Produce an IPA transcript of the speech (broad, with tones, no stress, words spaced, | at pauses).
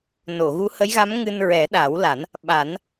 no˨˩˨ɣu˧˥hə˧˥jɣa˧˥m ŋɨ˧n ɹɛ˨˩˦ɗa˨˩˦wla˨˩˦n | ɓa˨˩˦n